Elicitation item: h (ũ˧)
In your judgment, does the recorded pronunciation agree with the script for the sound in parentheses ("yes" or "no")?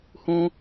yes